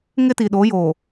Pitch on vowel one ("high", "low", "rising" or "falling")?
high